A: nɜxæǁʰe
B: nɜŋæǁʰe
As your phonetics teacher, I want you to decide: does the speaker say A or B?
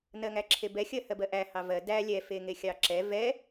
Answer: B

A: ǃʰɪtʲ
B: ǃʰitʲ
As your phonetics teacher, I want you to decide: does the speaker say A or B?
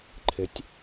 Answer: A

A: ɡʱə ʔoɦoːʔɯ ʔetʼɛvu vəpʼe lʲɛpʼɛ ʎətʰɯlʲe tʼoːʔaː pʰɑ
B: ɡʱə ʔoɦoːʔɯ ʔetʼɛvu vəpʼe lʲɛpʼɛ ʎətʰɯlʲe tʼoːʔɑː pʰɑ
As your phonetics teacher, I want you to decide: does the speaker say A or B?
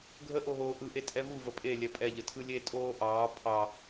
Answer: B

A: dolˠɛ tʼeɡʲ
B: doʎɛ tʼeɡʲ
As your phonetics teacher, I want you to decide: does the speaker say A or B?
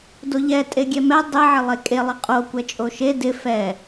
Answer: B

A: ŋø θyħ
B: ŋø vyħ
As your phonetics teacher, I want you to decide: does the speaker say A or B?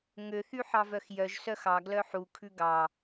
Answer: A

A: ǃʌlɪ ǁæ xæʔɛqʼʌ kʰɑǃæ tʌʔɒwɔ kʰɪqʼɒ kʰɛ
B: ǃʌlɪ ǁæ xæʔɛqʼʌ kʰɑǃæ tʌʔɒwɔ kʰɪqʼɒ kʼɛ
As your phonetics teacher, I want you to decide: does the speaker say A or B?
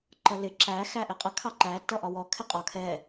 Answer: A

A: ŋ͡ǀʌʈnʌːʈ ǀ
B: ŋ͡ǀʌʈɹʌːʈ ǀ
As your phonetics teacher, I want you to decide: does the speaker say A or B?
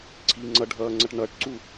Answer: A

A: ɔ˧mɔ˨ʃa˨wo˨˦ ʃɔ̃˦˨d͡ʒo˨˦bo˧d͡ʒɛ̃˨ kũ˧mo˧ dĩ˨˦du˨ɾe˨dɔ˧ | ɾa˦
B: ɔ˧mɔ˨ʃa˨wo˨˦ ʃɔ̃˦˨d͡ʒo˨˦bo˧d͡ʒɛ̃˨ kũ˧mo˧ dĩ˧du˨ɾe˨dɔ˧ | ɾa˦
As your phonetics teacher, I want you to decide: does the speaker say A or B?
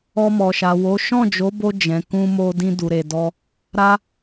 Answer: B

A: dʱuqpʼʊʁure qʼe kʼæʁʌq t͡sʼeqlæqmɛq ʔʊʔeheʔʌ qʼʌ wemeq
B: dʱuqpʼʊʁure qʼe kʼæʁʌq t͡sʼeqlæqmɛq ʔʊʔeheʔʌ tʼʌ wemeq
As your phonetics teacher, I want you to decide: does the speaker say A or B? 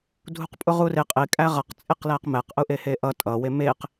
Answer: B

